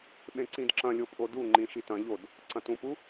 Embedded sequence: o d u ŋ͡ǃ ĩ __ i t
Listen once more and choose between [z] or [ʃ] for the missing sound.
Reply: ʃ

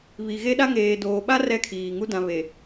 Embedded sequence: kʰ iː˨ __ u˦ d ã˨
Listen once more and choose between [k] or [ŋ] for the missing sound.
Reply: ŋ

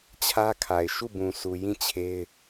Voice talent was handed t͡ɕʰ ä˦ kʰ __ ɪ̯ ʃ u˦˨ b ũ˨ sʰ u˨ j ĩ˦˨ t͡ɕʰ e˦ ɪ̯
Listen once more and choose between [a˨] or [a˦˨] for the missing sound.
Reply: a˨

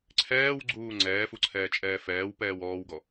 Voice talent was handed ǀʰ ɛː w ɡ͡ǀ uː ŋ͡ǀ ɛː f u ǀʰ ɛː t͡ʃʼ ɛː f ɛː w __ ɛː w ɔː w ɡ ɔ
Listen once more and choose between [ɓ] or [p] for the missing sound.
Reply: p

